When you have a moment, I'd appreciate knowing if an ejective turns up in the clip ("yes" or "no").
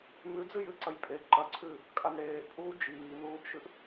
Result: yes